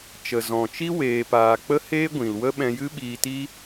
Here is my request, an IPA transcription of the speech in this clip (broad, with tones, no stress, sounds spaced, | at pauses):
t͡ʃ ə˨ z ɔ̃˨ t͡ʃ i˦ w eː˨ p aː˨ k͡p ə˦ h eː˦ ɡʷ ĩ˨ l w ə˦ ɓ ɛ̃˧ j ɨ˦ ɓ iː˧ t i˦